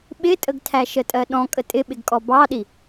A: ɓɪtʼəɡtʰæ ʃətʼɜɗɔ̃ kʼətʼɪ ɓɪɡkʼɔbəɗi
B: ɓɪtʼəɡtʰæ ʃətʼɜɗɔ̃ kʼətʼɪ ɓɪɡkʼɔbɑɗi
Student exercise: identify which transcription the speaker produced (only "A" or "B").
B